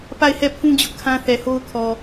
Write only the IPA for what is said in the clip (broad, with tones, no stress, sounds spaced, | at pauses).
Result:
p a˦˨ ɪ̯ h ɛ˦˨ pʰ ũ˦ d͡ʑ ʊ˦ ʔ kʰ ã˦ θ ɛ˨ h o˦ ʊ̯ kʰ ɔ˨